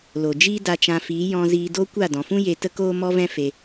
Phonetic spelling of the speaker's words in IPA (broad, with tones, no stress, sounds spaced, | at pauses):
l o˨ d͡ʒ iː˦ d a˧ t͡ʃ ã˧ f iː˨˦ j ɔ̃˧ z iː˧ d o˦ kʷ a˦˨ d ɔ̃˨ f ũ˦ j e˧ t ə˦ k oː˦ m ɔ˦ v ɛ̃˦ f e˧